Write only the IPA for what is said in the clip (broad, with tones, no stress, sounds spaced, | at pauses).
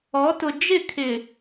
ɔ˨˦ t ʊ˨ d͡ʒ ɪ˦˨ kʰ ɪ˨